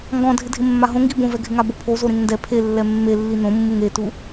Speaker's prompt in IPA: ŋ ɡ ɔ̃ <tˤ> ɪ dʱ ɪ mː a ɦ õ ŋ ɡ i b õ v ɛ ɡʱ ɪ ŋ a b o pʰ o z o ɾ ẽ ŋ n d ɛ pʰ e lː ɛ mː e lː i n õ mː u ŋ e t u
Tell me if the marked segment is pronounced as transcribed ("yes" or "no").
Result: no